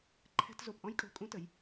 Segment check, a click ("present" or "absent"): present